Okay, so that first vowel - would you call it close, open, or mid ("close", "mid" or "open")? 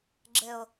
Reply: mid